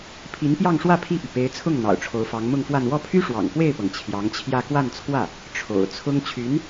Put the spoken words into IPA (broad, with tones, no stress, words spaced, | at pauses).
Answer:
pʰi˧˥npjɑ˥˧ŋʂwä˥˧ pʰi˥˩py˩ pe˧˥ɪ̯t͡sʰʊ˥˩ŋ n̪ɑ̰˨˩ʊ̯ʈ͡ʂʰo˧˥ʊ̯fɑ˧˥ŋ mʊ˥˧ŋfwa˥˧n wɔ˥˩pʰy˥ʂwɑ̰˨˩ŋ pwe˥˩ɪ̯pɤ˩ŋ t͡ɕʰjɑ˧˥ŋt͡ɕʰjä˥˧ kwa˥˧nt͡sʰwä˥˩ | ʈ͡ʂʰo̰˨˩ʊ̯t͡sʰʊ˥ŋ t͡ɕʰy˧˥n